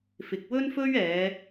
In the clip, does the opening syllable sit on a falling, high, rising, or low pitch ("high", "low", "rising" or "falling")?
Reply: low